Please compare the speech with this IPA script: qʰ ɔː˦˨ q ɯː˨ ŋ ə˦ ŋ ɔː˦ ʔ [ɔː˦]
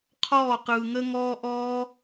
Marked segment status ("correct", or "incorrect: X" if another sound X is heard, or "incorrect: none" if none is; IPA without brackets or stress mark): correct